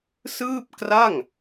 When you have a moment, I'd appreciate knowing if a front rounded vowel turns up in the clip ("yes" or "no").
no